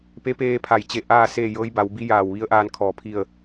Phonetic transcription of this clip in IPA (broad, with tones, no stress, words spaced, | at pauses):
pe˧˥peː˧ pʰa˧˩jt͡ɕe˥˨ ʔaː˥˨seː˥˨ jɤː˧˥jba˩˧w bi˧˥jaː˧˩wʋi˧˥ə̯ʔaː˧n kʰɔː˧˩ pʰi˥˨ə̯